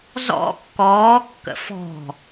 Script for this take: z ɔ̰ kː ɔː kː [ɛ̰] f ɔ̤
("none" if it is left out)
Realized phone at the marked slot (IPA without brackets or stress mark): ə̰